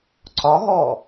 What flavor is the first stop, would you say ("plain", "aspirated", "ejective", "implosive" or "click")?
click